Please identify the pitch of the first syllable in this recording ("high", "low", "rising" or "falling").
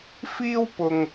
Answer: high